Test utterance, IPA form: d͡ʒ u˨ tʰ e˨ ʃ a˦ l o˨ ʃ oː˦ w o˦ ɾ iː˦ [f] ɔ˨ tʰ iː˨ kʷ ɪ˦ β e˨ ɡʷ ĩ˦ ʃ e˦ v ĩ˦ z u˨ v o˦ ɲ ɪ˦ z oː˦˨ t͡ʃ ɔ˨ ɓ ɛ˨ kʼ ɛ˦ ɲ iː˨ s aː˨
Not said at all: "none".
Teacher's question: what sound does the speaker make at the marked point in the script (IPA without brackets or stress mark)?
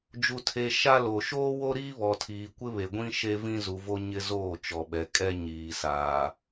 β